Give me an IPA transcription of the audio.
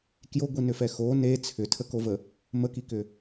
k j o ɡʷ i n ʏ f ɛ x o n e t͡sʰ ʏ tʰ ə k o v ə | m ə k i k ʏ

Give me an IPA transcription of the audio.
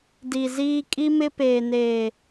d i˨ z iː˦ kʼ i˦ m ɪ˦ p eː˨ n eː˨

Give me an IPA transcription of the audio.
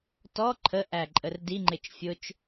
t ɔ ǃʰ ə ʔ æ ǃʼ ə r d i ŋ͡ǃ ɪ t͡ʃ fʲ ʊ t͡ʃ

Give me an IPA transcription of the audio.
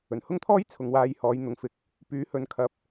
ɵ˨˩ n h ʊ˥ ŋ t̪ʰ ɔː˥ j t͡sʰ ʊ˨ ŋ w aː˧ j h ɔː˨˧ j n̪ ʊ˨ ŋ f ɪ˧ k̚ | p yː˨˧ h ɵ˨ n kʰ ɐ˧ p̚

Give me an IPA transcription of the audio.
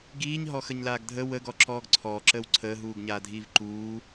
ɡ iː ɲ ɦ ɔ x ə ɲ l aː ɡ dʱ ə w ə ɡ ɔ ǁ ɔː ɡ ǀʰ ɔː ǁ əː w ǀʰ əː ɦ uː ɡ ɲ aː dʱ iː v ǃ uː

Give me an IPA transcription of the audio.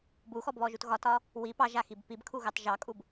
b u x ɔ b β ɔ ʒ u t ɣ ɒ t ɒ | w i p ɑ ʒ a x i b p i b kʰ u ɣ ɑ t ʒ ɑ kʼ u b

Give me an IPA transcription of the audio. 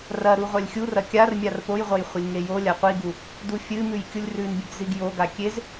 r ɐ ɾ u ʁʷ a lʲ xʲ u r ɐ kʲ a r mʲ a r p o j ʁʷ ɐ j χʷ ɐ lʲ ŋ e j o lʲ a qʷ i ɡ u | d u fʲ ɨ m ʉ j kʲ u lʲ r ʉ n bʲ e ɡ z i ɡ j o ɡ a kʲ e z

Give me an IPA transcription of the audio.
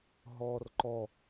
ɦ ɔː r ǃ ɔ

